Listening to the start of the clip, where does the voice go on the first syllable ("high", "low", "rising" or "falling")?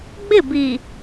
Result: falling